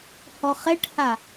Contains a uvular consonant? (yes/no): yes